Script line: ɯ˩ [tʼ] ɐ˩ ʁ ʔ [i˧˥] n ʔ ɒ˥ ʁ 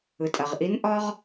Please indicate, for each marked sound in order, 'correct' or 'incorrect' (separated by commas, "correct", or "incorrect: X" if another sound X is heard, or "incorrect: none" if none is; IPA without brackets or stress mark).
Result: correct, correct